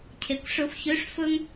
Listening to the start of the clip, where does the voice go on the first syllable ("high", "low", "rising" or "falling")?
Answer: low